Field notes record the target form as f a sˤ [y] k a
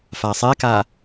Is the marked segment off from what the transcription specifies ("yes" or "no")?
yes